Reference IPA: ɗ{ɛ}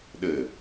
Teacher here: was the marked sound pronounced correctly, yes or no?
no